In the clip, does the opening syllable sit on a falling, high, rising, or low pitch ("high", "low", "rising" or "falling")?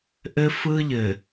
high